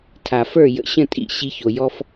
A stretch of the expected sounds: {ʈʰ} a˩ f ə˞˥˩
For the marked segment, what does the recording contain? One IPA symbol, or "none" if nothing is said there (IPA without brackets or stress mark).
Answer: tʰ